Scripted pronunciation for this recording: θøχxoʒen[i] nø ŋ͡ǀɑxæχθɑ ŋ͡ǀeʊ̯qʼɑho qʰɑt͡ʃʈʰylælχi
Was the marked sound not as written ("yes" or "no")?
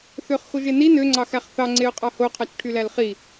no